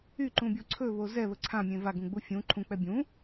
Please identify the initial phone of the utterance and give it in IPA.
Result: y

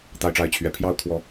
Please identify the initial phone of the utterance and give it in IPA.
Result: t̪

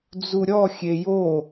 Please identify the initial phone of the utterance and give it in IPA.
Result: d͡z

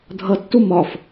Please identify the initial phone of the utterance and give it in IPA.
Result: dʱ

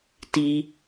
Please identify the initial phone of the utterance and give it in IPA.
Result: t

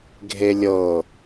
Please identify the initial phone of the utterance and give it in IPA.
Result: ɡʱ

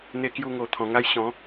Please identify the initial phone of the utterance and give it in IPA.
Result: n̪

